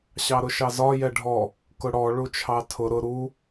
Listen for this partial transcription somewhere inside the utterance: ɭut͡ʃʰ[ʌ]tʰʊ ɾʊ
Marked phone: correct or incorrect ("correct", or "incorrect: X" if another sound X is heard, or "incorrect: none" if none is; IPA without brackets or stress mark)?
incorrect: ɑ